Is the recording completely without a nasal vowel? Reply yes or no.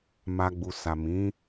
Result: no